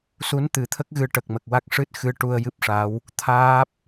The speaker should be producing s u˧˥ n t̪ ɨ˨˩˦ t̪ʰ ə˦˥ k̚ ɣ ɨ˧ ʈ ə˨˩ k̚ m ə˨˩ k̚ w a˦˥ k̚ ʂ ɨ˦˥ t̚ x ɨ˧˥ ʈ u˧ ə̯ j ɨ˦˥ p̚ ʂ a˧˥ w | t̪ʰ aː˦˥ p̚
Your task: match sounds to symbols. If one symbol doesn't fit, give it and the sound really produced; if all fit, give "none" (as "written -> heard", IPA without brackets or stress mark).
none